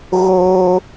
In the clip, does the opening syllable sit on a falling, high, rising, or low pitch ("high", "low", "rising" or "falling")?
high